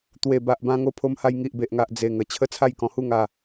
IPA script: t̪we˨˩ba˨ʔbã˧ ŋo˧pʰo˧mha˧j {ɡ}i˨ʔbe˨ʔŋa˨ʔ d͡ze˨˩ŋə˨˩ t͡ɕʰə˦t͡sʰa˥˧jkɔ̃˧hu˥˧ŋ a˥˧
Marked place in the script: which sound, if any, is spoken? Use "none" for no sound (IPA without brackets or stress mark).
ŋ